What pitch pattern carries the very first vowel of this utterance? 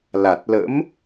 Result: low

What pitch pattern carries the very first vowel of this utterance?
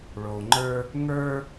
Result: low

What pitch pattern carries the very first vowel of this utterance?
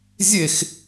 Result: falling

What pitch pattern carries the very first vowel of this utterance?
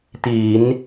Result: low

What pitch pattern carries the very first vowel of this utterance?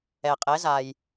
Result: low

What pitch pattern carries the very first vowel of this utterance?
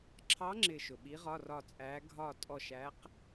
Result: rising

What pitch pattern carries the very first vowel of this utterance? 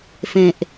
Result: low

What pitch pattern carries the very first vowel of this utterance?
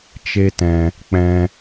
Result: high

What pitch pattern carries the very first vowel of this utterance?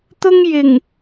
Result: high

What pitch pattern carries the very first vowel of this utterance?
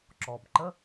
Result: low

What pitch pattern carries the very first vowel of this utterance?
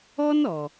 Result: high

